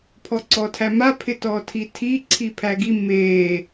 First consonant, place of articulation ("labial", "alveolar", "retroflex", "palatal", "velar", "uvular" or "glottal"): labial